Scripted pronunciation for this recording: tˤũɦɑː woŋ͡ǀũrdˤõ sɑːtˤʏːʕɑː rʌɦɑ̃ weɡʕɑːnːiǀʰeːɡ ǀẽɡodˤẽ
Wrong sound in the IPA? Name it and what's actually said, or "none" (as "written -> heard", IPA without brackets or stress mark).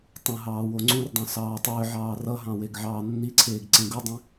none